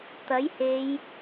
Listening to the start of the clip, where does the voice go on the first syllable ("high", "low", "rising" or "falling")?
rising